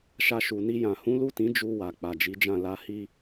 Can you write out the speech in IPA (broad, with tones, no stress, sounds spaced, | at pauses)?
ʃ a˧ ʃ u˨ n i˧ j ã˨ h ũ˨˦ l u˦˨ t ĩ˨˦ d͡ʒ u˧ w a˨ k͡p a˨ d͡ʒ i˨˦ d͡ʒ ã˦˨ l a˧ h i˧